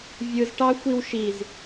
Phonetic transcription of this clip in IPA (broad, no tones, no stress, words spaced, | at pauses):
vʲɯzʈɑ xʷiwʃiz